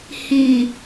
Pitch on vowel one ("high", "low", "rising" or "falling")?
low